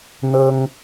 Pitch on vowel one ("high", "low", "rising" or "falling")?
high